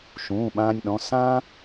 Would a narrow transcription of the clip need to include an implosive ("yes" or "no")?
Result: yes